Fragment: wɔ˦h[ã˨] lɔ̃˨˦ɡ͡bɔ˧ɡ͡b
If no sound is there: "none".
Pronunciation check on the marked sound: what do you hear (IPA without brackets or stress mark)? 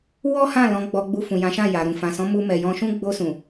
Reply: ã˦˨